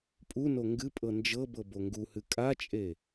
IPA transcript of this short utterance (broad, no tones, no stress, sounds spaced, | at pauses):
pʼ u n o ŋ ɡ ɨ pʼ ɤ n d͡ʒ ɤ b ɤ b o ŋ ɡ u h ɨ kʼ a t͡ʃʼ e